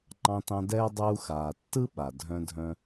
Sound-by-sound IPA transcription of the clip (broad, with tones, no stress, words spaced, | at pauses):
ŋ͡ǃɑ̃˦tɑ̃˦dɛː˥ dˤuː˦xaː˨ tːɯ˥ɓa˩ dʱœ̃˦ dʱœ̃˦